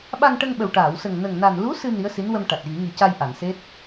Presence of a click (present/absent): absent